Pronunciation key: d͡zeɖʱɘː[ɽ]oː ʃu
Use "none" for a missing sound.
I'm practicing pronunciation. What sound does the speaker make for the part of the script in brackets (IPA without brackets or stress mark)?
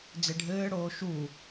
ɽ